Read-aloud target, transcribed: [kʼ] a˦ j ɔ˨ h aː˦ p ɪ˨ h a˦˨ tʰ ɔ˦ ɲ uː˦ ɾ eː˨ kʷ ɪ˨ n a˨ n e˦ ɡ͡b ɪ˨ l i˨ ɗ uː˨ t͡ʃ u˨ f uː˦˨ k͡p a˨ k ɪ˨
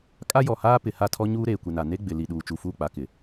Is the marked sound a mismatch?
no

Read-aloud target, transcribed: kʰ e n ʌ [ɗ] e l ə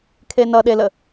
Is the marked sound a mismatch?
no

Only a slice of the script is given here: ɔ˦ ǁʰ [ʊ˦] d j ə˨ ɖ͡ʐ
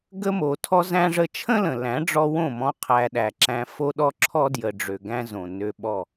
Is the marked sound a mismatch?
yes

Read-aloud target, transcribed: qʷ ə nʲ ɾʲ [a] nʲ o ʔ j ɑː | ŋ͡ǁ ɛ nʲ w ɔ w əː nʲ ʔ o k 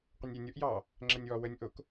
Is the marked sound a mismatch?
no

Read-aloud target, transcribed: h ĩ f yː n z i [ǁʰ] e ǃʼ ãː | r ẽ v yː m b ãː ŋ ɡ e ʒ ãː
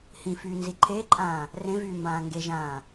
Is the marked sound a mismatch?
yes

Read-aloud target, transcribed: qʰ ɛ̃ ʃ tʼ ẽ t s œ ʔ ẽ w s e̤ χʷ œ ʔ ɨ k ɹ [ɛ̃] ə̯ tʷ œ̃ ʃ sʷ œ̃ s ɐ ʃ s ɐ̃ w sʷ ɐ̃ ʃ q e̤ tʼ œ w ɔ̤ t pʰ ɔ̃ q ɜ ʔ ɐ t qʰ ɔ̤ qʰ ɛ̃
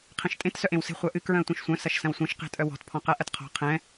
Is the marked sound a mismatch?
yes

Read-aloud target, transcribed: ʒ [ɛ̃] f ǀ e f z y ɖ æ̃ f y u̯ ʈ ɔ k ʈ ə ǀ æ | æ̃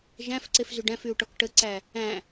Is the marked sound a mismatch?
yes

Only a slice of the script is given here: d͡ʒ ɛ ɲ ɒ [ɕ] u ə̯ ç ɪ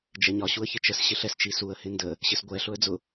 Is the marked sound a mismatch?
no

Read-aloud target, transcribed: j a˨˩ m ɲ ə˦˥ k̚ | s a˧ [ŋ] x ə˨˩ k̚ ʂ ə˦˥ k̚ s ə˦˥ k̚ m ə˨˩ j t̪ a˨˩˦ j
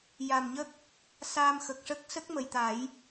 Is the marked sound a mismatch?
yes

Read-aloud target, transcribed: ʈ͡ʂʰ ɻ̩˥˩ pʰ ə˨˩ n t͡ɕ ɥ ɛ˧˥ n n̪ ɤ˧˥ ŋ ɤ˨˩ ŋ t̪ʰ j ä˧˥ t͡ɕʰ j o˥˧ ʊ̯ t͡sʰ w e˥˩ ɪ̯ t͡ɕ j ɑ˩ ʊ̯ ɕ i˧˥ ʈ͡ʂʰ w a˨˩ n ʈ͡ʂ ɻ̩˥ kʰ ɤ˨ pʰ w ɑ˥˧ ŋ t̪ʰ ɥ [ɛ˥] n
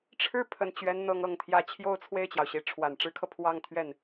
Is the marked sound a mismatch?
yes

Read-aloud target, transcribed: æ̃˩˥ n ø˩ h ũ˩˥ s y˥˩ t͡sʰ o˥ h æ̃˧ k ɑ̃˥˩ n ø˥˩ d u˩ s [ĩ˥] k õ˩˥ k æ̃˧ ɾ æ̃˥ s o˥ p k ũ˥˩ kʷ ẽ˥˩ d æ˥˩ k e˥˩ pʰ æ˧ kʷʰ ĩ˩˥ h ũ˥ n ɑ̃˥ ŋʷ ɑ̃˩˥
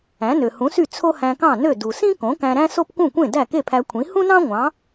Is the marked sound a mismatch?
no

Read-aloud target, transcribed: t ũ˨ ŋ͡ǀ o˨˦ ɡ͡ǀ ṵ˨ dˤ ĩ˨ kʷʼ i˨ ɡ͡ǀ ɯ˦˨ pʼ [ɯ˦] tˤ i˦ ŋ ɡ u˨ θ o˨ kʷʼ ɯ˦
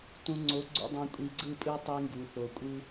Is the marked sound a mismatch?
no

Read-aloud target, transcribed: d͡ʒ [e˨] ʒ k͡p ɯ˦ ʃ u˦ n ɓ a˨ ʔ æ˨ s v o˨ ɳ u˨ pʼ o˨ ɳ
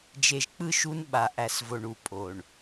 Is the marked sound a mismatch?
no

